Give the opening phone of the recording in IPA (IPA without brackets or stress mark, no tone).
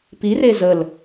p